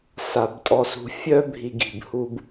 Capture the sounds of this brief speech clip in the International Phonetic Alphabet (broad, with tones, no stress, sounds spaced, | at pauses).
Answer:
s a˨ b tʼ ɔ˧ s ṳ˧ fʲ œ˦ bʱ i˧ ɡ i̤˨ b h u˦ b